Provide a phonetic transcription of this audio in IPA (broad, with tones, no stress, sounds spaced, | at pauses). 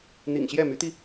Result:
n̪ ḭ˨˩ ŋ ɕ j ɛ˥˩ m y˧˥ t̪ i˧